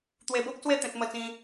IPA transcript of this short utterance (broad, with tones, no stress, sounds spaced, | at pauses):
t̪ w e˧ b o˦ k̚ s w e˥˧ t̪ ẽ˦ t̚ m ə˥˧ t͡s ĩ˦